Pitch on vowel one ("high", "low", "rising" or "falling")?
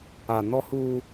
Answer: low